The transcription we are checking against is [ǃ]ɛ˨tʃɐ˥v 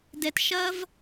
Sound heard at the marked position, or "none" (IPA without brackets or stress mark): d